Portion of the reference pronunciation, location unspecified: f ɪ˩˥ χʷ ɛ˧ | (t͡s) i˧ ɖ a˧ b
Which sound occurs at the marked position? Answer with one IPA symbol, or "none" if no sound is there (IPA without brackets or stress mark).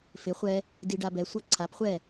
d